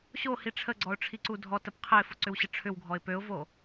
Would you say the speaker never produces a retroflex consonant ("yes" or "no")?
no